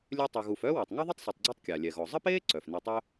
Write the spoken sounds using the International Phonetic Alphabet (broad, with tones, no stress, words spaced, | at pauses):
lʲø˦tˤy˨ ɣu˨fœː˥wy˩tˤ ŋɛ˥ðˤi˥tˤsˤi˩tˤɡ͡ǀø˦tˤ kʲa˩lʲɛ˩ɣɔ˩ zˤə˥peː˥ ǀœ˩f ne˨tˤœ˦